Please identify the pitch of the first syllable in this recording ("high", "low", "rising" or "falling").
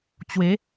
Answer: rising